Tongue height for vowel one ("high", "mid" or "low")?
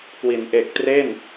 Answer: high